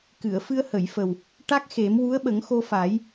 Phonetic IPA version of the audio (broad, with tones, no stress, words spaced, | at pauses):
kɨ˨˩˨ə̯fɨ˧ə̯hə˨˩˨jfə˨˩w | ʈa˦˥k̚xe˨˩˦m wu˧˥ə̯ ɓə˨˩˦ŋxo˧fa˨˩˦j